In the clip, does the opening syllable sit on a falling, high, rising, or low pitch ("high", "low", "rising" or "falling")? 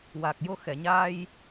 low